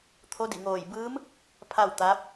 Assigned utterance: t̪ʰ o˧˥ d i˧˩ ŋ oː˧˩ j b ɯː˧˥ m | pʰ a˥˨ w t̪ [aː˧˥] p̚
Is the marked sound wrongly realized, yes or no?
no